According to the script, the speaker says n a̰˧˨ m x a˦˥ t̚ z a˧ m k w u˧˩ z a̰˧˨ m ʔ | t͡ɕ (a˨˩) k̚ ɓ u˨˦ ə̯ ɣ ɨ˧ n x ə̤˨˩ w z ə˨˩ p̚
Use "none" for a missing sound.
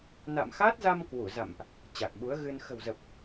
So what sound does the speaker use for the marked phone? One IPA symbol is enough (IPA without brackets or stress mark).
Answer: a˨˩